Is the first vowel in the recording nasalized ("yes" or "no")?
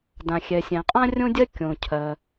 yes